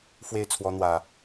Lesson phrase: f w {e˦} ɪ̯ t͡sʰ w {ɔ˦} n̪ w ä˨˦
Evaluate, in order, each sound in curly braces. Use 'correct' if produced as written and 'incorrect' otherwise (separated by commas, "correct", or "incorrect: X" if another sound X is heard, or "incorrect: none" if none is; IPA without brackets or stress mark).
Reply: incorrect: e˥˨, correct